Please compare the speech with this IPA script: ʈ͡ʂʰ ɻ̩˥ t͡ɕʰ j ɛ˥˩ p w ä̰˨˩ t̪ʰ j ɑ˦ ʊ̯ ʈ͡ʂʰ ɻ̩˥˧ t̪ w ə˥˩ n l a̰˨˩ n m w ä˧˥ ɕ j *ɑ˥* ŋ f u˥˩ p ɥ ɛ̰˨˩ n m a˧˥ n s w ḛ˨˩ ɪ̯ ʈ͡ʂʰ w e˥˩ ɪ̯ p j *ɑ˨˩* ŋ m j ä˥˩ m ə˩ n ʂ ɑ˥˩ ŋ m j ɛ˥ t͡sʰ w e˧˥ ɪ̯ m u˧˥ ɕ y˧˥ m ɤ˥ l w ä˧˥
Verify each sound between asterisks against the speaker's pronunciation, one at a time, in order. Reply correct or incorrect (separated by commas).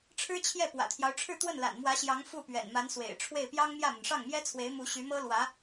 incorrect, incorrect